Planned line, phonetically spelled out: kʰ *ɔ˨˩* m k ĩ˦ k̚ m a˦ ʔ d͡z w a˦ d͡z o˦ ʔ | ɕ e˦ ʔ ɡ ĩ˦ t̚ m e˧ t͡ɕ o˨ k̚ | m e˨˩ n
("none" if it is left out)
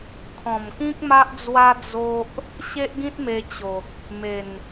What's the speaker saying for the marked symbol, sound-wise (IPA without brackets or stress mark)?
ɔ̃˨˩